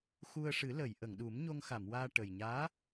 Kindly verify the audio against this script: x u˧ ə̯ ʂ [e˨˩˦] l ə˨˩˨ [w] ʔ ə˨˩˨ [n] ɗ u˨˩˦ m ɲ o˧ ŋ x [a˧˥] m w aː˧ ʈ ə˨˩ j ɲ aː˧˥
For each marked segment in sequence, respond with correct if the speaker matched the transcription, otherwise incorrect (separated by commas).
incorrect, incorrect, incorrect, incorrect